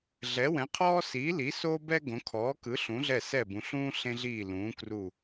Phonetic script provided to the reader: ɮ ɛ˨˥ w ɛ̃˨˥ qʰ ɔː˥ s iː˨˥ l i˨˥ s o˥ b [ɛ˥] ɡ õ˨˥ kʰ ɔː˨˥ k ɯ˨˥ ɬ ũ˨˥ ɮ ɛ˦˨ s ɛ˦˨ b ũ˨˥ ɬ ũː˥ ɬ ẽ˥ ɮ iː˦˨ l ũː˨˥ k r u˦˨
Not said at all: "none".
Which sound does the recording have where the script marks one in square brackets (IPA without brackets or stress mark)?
ɛ˥